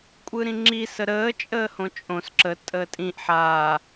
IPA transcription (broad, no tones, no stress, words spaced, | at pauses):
kʷʼɯɾĩŋ͡ǁi səɾəː t͡ʃʼəːhõt͡ʃʼõs ǁə tʼəːtʼĩʔ ħaː